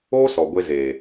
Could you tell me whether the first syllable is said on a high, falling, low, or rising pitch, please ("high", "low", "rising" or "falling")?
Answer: high